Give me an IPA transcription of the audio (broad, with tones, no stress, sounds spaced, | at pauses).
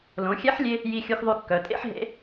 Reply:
l õ˩˧ xʲ ɛ˧˥ ħ lʲ e˧ | j i˧ xʲ u˧ x ðˤ y˧ kː œ˩˧ tʼ ḛ˥ ħ ɦ ḛ˧˥